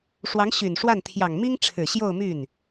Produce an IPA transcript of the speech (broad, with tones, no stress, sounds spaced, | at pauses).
ʂ w ɑ˧˥ ŋ ɕ y˨˩ n ʂ w a˥˩ n t̪ʰ j ɑ˨˩ ŋ m i˥ ŋ ʈ͡ʂʰ ɻ̩˨˩ ɕ j o˥˧ ʊ̯ m y˥˩ n